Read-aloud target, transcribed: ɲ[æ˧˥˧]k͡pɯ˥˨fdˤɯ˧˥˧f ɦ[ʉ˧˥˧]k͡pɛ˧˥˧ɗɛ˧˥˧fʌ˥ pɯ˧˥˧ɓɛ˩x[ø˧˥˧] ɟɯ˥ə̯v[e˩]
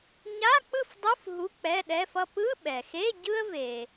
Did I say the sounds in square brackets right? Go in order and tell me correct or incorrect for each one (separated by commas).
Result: incorrect, incorrect, incorrect, correct